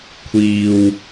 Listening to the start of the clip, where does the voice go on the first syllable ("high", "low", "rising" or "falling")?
low